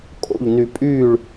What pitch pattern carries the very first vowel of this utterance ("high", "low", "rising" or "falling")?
falling